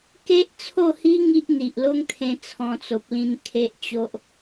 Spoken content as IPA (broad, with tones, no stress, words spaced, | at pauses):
ke˦ʔt͡sʰo˥˧hi˦ ŋi˦ʔn̪i˨ʔlo˦ŋt̪ʰẽ˧ t͡sʰɔ̃˧t͡so˨p̚lĩ˧n kʰe˦ʔt͡ɕo˦ʔ